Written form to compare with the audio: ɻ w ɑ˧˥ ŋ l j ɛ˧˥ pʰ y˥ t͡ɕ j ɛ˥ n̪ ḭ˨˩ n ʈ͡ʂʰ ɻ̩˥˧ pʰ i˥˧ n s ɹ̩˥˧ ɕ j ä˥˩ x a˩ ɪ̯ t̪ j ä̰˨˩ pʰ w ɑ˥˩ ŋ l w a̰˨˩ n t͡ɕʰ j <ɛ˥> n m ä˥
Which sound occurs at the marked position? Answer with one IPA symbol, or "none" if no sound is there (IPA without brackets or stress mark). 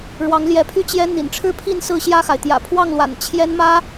ɛ˥